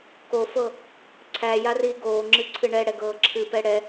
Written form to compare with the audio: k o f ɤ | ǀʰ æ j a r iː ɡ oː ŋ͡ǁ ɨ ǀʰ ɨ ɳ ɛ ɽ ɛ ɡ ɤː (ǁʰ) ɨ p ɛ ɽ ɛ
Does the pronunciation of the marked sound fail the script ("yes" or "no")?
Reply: no